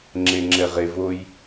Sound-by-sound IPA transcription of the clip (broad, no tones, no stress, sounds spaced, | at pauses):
ŋ͡ǁ e ŋ͡ǁ ɛ ʁ e v o j